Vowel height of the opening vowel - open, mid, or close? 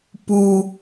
close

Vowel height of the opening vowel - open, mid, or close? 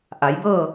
open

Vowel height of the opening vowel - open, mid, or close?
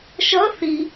mid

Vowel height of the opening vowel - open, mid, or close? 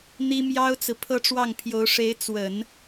close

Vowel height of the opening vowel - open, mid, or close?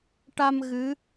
open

